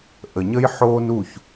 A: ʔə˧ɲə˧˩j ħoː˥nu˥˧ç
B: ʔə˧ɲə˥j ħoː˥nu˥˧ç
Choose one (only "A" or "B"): B